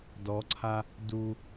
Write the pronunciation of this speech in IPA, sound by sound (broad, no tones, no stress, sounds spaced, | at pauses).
d ɔ ǀʰ a | d u